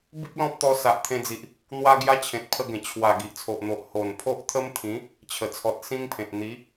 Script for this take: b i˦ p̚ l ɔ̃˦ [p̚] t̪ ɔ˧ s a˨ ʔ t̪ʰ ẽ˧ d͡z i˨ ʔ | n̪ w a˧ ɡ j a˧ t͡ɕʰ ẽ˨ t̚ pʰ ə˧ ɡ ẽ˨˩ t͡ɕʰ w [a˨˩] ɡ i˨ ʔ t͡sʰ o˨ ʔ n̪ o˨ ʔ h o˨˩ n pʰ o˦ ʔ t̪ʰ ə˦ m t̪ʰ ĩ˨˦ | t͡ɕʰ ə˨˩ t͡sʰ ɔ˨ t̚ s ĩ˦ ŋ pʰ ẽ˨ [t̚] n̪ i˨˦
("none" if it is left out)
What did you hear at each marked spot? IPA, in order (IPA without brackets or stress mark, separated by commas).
p̚, a˨˩, t̚